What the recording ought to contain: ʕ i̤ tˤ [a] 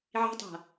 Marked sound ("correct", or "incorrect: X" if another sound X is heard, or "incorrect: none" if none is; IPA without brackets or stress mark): incorrect: a̤